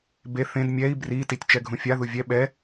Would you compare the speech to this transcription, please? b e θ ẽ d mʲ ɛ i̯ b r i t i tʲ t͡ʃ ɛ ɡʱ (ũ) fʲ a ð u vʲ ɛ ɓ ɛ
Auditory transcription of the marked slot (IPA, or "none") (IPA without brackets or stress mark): ũ